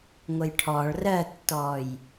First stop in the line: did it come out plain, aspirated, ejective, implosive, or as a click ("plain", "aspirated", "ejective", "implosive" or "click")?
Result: aspirated